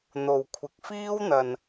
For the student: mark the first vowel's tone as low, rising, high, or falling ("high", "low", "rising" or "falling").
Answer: low